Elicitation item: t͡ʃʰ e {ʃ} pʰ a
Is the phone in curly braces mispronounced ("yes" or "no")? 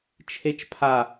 yes